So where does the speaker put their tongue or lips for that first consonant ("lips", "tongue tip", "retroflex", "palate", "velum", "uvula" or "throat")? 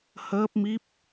throat